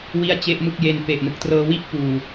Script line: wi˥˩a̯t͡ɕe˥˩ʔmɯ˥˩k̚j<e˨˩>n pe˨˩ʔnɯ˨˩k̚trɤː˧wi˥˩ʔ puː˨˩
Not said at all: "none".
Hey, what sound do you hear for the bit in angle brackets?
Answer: e˧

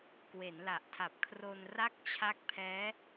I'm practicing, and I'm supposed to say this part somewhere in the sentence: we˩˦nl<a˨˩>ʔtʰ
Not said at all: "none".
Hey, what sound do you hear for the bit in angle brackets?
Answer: a˨˩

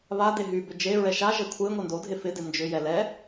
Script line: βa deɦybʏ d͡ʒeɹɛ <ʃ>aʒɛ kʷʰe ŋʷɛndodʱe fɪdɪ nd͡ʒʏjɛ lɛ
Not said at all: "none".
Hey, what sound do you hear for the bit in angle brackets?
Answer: ʃ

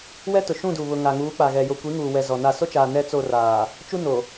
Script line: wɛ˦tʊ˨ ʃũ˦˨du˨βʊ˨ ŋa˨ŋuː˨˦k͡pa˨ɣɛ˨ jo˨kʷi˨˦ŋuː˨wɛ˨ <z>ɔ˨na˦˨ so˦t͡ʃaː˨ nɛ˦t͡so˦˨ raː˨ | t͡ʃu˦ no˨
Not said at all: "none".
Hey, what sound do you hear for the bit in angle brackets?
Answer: z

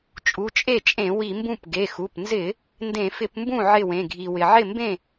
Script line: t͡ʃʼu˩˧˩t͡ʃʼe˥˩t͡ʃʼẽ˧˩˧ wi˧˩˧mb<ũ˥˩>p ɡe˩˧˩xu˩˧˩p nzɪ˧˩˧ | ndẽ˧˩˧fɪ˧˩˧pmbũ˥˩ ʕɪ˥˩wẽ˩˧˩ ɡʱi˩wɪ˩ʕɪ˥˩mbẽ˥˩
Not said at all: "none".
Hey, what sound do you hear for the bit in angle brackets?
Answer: ũ˥˩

